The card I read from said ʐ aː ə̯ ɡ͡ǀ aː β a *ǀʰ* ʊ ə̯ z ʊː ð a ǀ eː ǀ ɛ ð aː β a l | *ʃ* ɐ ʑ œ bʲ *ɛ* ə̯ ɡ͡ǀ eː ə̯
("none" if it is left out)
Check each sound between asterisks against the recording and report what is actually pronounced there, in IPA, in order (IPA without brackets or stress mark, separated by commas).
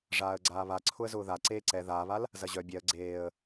ǀʰ, z, ɛ